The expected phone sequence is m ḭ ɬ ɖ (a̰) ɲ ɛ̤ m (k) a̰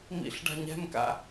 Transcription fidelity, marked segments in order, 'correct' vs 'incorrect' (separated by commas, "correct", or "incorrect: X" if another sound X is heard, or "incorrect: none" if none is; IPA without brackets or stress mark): incorrect: a̤, correct